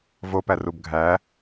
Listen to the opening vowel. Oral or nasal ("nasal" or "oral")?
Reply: oral